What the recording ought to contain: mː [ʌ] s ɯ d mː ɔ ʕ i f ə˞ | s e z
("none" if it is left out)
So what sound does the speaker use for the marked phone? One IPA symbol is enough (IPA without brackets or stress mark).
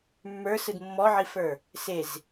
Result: ə˞